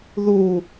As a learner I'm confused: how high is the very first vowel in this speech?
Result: high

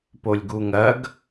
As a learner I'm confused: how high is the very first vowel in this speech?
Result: mid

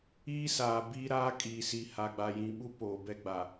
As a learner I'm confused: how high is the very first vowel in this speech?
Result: high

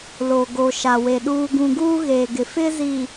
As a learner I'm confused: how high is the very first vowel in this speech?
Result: mid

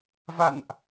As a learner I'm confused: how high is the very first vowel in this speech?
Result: low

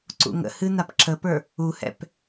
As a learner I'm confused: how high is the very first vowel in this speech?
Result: high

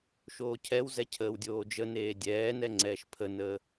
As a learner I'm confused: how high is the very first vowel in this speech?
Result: mid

